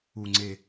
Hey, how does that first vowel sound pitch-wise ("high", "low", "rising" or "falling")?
low